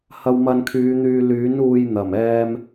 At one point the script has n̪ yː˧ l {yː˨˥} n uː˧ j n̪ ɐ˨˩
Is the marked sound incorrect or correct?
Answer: correct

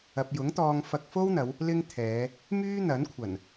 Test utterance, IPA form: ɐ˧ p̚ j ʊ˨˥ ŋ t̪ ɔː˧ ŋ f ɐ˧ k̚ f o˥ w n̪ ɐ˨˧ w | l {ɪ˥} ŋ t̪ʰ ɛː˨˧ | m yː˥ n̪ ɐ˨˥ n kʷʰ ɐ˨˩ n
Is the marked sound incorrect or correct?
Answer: correct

